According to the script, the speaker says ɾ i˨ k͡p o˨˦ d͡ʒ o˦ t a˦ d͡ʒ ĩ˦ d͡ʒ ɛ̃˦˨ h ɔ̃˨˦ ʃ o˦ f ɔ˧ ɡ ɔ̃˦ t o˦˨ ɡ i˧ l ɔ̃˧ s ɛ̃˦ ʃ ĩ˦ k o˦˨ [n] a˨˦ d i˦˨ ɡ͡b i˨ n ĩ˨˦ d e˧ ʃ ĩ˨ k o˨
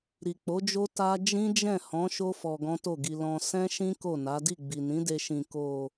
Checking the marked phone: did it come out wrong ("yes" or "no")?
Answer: no